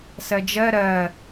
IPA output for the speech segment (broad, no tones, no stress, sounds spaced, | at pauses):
s ɜ d͡ʒ ɜ ɾ ɜ